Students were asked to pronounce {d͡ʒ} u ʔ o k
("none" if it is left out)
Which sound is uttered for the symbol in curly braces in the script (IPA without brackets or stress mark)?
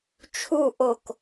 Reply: t͡ʃʰ